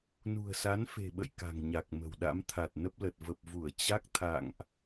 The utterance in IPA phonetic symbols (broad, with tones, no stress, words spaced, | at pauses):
nṳ˨˩ə̯sa˨˦nfe̤˨˩ɓə̰˧˨j ka̤˨˩ŋɲa˨˩k̚mə̤˨˩wɗa̰˧˥m t̪ʰa˨˩t̚nə˦˥p̚lə˨˩t̚ və˨˩p̚vu˧˩ə̯ t͡ɕa˦˥k̚ t̪ʰa̰˧˨ŋʔ